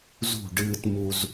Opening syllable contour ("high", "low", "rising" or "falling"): falling